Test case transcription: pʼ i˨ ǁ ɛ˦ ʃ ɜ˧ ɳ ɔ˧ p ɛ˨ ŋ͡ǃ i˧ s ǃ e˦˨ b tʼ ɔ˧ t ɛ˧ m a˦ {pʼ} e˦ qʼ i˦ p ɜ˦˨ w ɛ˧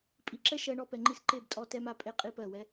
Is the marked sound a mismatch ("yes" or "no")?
no